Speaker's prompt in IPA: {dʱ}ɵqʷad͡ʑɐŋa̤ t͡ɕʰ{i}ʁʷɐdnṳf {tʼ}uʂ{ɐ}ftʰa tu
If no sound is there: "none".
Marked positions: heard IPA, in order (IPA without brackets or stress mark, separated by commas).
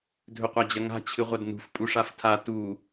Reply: dʱ, ɨ, pʼ, a